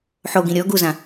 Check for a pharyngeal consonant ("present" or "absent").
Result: present